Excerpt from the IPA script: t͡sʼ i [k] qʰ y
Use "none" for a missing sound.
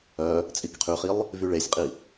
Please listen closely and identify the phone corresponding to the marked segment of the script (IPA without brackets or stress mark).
k